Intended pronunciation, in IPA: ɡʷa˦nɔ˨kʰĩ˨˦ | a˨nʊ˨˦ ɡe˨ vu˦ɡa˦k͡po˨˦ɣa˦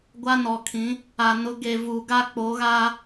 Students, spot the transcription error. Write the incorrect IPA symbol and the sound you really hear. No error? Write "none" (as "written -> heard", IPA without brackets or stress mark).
u˦ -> u˨